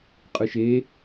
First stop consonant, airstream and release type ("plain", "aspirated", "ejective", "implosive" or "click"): ejective